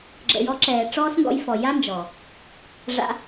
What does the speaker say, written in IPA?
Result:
ɡ͡ǁə̰˨jɔ˨˦ ǁɛː˨ʈ͡ʂɔː˦s ŋɡɔ̰˧jfɔ˨ ja˦nd͡ʒɔ˨ | ʐa̰˧

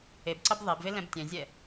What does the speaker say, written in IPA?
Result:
ebǀʌb ðˤebve lɛ̃btʲɛ̃zʲɛ

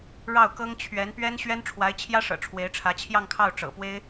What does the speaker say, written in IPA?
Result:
ɻɑ˥˩ʊ̯kɤ˥ŋ t͡ɕʰɥɛ˧˥npɥɛ˥n ɕɥɛ˥nʈ͡ʂʰwa˧˥ɪ̯t͡ɕʰjä˥ʂɤ̰˨˩ ʈ͡ʂʰwe˧˥ɪ̯ʈ͡ʂʰä˧˥t͡ɕʰjɑ˥˧ŋkʰɑ˥˩ʊ̯ ʈ͡ʂɤ̰˨˩pwe˥ɪ̯

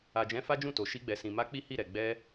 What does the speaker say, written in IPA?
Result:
a˨d͡ʒɛ̃˨˦ fa˦d͡ʒũ˦˨to˨ ʃi˧ɡ͡bɛ˨ sĩ˨ma˧ k͡pi˦hi˦˨ɾɛ˨ ɡ͡bɛ˧

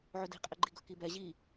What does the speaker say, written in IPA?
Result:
ʕɵdi̤ qʼɛɡ͡ǃiɡɵ kibɛ ʑi

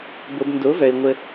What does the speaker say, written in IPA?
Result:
bo˨b ndo˨˦vœ˨ɪ̯ ŋʷə˦

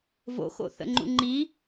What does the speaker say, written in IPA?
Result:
vo̰xo̰θə̰ŋ͡ǃṵ ŋ͡ǃi

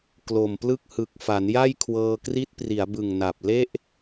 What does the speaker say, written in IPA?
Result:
klo˨˩mplɯ˥˩k̚ hɯ˨˩k̚ fa˩˦nja˥˩j kʰwɤː˧kri˦˥t̚pri˩˦a̯bɯ˨˩ŋ na˨˩p̚ le˥˩ʔ

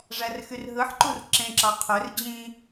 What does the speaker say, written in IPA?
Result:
ʐærxyrɦɯħǃur ǁẽǁɑ qʰør d͡ʑĩ

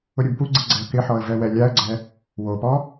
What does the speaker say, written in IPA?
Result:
ʊɾʲubpuɡ͡ǀi ɡ͡ǀɛə̯kɪħɔə̯ vɛwɛlʲaə̯ɡ͡ǀɛ | wopɔ

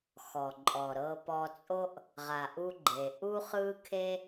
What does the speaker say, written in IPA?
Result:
xɔ˩ǃʼɔ˩ɾɤ˧ pɔ˧t͡sʼo˥ʔ | ʁa˩ʔu˧ ɡ͡ǃe˩ ʔu˥χɯ˥kʰe˥

